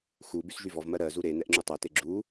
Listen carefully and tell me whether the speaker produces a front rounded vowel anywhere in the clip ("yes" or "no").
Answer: yes